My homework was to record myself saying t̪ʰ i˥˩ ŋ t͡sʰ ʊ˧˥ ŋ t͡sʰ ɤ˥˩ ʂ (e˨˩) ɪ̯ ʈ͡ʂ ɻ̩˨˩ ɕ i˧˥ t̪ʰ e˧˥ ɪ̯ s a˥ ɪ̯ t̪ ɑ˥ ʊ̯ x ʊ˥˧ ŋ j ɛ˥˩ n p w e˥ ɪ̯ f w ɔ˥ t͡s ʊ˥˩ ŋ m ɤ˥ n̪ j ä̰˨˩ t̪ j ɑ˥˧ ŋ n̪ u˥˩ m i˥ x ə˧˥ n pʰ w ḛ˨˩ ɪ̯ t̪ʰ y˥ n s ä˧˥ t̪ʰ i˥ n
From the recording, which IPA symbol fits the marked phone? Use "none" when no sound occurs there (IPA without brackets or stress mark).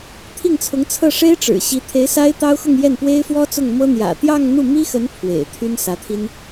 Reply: e˥